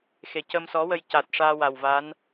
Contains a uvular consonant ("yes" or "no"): no